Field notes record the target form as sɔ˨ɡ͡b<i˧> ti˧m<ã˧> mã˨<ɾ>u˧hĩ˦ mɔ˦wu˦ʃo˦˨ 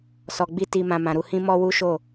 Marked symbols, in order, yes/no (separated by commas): yes, yes, yes